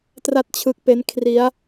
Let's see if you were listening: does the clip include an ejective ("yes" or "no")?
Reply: no